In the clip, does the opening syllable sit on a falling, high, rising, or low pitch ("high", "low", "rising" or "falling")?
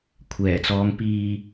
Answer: low